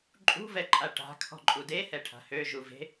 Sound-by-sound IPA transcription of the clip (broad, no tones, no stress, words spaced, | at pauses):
ǃʼṳvɛǃʼa ʈa̤kʰɔ̤ǃʼu dehɛʈʰa̤ høʒu ve̤